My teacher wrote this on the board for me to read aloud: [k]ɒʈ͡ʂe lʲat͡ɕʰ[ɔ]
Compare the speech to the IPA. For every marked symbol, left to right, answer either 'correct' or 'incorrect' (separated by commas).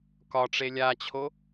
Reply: correct, incorrect